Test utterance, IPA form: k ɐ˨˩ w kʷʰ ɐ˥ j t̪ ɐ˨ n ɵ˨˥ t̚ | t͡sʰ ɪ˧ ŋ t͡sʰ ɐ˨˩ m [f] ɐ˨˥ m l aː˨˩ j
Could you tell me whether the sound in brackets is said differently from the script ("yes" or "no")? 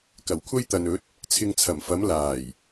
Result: no